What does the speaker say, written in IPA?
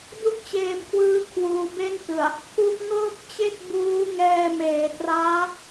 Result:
du˥˩k̚t͡ɕeː˧mkʰwɯː˦˥ kʰwuː˧be˥˩ntɯ˨˩a̯ | pʰu˦˥ʔŋɤː˥˩k̚t͡ɕe˥˩k̚ buː˦˥ŋɛː˧meː˩˦traː˦˥

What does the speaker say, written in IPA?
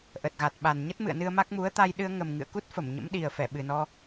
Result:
ʔə˨˩t̚ɣa˨˩t̚ɓa˨˩n ɲə˦˥t̚mɨ̰˧˨ə̯nɨ˧ə̯ ma˦˥k̚ mu˨˦ə̯t̪a˧j ɗɨ˧ə̯ŋə˨˩mŋɨ̰˧˨ə̯ku˦˥t̚ fə˧˩mɲə̰˧˥mɗi˨˩ə̯fɛ˧˩ ɓɨ˨˩nɔ˧

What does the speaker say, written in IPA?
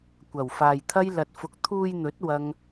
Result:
kʷɐ˨˩wfaː˨jt̪ʰɐ˥j lɐ˧t̚fʊ˧k̚ t̪ʰuː˧jn̪ɵ˨˥t̚ wɐ˥ŋ

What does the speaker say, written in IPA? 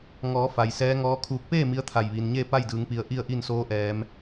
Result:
ŋɔː˩˧ fa˩jsɛː˧˥ŋɔː˧˥kʰuː˧k̚ peː˥˨ mi˧˥ə̯t̪ʰa˧˩jʋiː˩nɲeː˥˨ pa˥˨jdɯː˩˧ŋpi˩˧ə̯ ʔi˥˨ə̯ʔi˥˨nsoː˧˥ ʔɛː˩˧m

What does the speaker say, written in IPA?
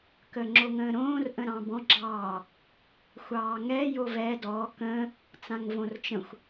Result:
kəːŋ͡ǁoŋə̃ːɾõːr ʔə̃ɾɑ̃bɔ̃ ɡ͡ǁɑː | xʷɑːŋɛ jovɛ dɔː kə̃ː | t͡sãŋvõrt͡ʃə̃xʷ

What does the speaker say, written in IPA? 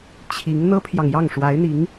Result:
t͡ɕʰi˧˥ŋ n̪ɤ˥pʰjɑ˨ŋjɑ˥˩ŋ ʂwa˧˥ɪ̯n̪i˧˥ŋ

